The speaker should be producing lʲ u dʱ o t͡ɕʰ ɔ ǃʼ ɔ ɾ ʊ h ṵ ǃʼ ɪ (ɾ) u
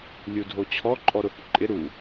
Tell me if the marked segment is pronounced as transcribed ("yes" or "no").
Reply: yes